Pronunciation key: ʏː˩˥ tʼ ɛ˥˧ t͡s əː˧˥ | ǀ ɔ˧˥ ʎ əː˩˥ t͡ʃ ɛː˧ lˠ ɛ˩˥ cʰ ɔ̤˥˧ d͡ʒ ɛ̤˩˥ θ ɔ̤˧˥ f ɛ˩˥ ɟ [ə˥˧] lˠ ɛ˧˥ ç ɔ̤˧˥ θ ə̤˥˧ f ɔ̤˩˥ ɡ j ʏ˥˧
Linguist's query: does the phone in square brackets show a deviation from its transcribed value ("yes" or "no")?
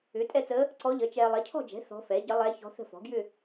yes